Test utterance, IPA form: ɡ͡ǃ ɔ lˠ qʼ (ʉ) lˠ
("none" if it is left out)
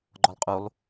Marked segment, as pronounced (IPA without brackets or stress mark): u